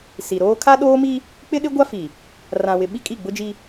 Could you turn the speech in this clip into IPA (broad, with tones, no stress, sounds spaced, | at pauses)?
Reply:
s i˨ ɾ oː˦ kʰ a˦ ɗ oː˦ m i˦ | k͡p ɪ˦ ɗ ɪ˦ ɡʷ a˦ f i˨ | r ã˨ w ɪ˨ ɓ i˦ kʼ i˦˨ ɡ͡b ʊ˦ d͡ʒ i˦